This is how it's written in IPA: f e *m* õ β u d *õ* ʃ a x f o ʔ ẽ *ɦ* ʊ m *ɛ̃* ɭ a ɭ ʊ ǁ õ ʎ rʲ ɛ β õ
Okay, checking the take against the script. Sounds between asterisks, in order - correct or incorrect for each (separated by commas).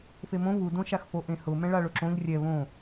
correct, correct, incorrect, correct